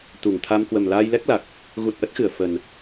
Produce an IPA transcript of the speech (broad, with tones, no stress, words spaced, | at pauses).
t̪u˧˩ŋt̪ʰa˧m kwə˨˩mlaː˧jlɛ˦˥k̚la˨˩k̚ | ɣu˨˩t̚ʔə˦˥t̚xɨ˧˩ə̯ fə˨˩n